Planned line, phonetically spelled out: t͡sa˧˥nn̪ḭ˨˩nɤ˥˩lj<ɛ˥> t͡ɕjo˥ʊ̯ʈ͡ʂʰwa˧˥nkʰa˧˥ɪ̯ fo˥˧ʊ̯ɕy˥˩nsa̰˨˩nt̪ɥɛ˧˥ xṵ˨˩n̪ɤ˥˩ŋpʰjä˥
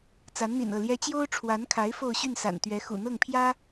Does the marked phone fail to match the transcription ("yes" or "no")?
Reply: no